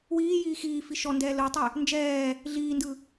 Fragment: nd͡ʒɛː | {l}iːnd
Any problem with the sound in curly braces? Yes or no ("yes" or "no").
yes